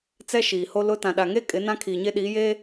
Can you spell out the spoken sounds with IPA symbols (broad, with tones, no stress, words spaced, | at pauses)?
t͡sɛ˦ʃiː˨ho˦ lʊ˦ tã˨ɗa˨ŋe˦ kʼɪ˨˦nã˦ kʰiː˨ɲe˦ɗiː˨˦jeː˦